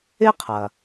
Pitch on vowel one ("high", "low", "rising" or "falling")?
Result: high